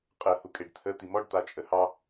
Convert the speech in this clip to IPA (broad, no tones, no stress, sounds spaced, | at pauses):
qʼ ə h u kʼ e ɖ t̪ʰ ə t̪ i m ɔ ɖ t̪ a t͡ʃʼ ə h ɑ